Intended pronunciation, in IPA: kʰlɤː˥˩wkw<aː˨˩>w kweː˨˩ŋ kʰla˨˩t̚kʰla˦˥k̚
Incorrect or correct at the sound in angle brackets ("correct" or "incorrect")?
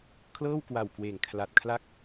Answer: incorrect